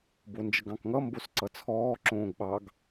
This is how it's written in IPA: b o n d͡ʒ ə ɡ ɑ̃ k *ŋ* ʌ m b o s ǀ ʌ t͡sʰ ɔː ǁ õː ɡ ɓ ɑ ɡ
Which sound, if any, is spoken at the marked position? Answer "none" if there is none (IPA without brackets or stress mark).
ŋ